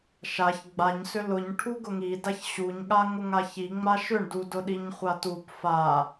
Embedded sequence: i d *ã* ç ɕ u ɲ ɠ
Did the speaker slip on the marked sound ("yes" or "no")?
yes